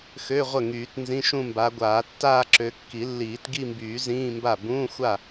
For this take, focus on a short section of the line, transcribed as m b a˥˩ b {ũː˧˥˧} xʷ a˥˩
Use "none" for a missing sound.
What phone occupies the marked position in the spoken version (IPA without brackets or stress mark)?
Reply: ũː˧˥˧